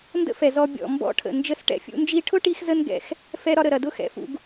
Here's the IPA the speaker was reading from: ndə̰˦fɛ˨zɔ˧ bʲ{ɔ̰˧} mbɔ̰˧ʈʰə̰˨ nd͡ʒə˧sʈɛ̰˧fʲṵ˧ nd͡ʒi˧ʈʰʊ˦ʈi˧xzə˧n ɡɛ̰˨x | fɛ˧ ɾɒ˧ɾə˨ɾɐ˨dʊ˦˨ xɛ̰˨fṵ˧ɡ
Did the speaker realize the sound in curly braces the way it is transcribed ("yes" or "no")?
no